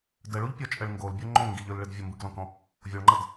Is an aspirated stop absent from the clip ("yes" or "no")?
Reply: yes